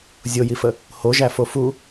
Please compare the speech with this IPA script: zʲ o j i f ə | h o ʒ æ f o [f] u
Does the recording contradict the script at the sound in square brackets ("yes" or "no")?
no